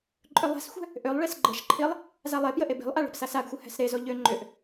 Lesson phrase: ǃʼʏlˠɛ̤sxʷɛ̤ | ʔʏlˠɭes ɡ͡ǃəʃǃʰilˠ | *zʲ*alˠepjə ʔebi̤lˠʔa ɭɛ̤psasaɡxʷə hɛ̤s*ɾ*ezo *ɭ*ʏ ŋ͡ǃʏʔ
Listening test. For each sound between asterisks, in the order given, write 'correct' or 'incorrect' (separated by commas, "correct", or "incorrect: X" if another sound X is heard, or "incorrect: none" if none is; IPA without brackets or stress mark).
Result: incorrect: z, correct, incorrect: ʎ